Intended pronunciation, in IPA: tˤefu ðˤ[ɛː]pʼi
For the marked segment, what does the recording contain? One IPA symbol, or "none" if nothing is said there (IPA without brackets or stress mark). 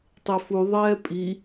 ɛː